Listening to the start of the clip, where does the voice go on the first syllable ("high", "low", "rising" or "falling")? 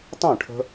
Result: falling